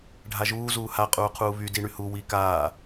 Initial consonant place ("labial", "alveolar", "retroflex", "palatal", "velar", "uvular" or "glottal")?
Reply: retroflex